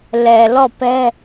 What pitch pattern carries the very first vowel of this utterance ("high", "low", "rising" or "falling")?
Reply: low